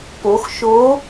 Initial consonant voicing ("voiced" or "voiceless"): voiceless